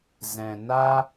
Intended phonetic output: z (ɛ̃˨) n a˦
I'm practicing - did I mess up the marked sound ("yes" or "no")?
no